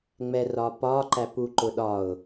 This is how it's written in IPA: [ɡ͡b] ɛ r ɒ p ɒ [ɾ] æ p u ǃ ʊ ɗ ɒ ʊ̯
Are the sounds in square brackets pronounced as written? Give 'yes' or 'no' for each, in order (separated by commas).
no, no